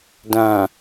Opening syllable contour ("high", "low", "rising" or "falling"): low